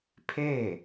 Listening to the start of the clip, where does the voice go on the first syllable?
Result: falling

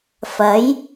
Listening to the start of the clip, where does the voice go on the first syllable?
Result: rising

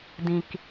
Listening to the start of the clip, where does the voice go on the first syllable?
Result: low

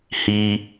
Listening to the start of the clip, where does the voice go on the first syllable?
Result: high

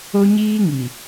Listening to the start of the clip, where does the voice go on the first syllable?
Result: high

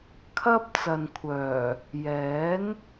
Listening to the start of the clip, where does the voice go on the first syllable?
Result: high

